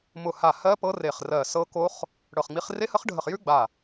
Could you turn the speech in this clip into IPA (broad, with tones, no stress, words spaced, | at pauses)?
mʊ˧˩ha˧˩ hɜ˦˥pɤ˦˥re˧˩χ rɜ˧˩sɤ˦˥ko˦˥χ | ɽɤ˧˩χŋ͡mi˦˥χ re˦˥hə˦˥χɖʱə˧˩χjʉ˦˥ ɡ͡ba˧˩